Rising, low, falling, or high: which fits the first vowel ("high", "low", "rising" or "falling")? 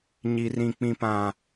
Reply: high